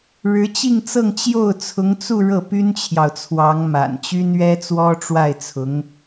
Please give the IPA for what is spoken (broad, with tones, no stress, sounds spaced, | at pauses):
ɻ ɻ̩˧˥ t͡ɕ i˥˧ ŋ t͡s ɤ˥˧ ŋ t͡ɕ j o˥˩ ʊ̯ t͡sʰ ʊ˧˥ ŋ t͡s u˥˧ ɻ ɤ˥˩ p y˥ n t͡ɕʰ j ɑ˨ ʊ̯ t͡sʰ w ɑ˧˥ ŋ m a̰˨˩ n t͡ɕ y˥ n ɥ ɛ˥ t͡s w ɔ˥ ʈ͡ʂ w a˥˩ ɪ̯ t͡sʰ ʊ˧˥ ŋ